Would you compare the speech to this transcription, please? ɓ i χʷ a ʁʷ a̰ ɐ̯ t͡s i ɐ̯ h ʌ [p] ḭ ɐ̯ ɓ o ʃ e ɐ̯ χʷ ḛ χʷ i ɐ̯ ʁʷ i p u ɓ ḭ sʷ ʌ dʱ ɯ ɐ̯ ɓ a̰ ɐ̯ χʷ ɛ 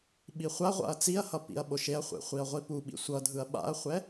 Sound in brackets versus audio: correct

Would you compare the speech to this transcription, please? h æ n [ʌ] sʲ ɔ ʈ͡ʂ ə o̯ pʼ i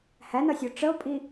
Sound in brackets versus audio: correct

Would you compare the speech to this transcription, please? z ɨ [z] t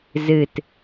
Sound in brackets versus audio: incorrect: none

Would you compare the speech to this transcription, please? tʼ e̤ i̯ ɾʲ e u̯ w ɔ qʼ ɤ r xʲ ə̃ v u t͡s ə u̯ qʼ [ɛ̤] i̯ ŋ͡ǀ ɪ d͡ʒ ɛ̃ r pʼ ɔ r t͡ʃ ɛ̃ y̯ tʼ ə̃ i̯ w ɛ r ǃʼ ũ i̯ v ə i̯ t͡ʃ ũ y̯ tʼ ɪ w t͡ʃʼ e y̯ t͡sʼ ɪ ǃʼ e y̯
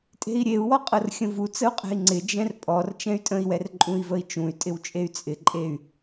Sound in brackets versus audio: correct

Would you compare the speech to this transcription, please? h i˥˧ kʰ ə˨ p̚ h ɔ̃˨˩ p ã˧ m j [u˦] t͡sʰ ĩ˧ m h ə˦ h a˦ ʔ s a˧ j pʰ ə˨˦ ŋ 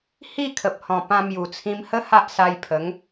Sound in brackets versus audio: incorrect: u˨˩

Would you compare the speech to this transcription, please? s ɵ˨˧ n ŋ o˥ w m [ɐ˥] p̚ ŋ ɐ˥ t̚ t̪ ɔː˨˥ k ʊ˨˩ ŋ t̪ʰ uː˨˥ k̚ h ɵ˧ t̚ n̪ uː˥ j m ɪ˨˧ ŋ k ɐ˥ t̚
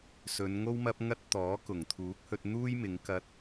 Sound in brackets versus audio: correct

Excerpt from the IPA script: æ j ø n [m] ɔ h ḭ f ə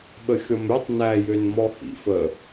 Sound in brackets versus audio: correct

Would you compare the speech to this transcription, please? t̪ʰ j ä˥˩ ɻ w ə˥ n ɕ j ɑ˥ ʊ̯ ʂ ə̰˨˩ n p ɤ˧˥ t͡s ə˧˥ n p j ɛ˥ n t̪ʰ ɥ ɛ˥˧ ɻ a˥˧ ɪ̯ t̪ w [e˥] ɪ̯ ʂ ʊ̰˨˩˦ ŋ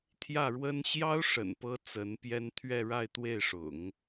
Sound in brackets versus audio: incorrect: e˥˩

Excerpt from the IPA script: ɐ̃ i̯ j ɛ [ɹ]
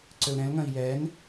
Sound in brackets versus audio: incorrect: n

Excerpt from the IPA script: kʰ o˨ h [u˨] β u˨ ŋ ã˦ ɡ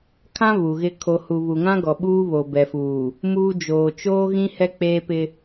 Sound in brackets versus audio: correct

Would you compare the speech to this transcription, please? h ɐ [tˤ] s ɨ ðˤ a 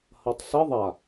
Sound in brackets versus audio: correct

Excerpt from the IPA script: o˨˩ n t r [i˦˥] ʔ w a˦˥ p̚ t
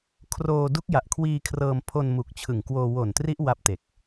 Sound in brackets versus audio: correct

